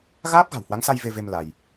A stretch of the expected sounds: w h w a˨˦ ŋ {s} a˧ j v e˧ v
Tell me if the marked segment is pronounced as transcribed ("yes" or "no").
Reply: yes